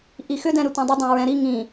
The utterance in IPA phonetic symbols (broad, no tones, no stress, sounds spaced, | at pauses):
ʔ i x ʏ d ɛ̃ ɾ ʏ tʷ œ̃ dˤ ʏ dˤ ã ɹ ɛ̃ ɾ i ŋ ĩ